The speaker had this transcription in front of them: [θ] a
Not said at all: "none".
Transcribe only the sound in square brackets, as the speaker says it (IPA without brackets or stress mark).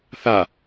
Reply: θ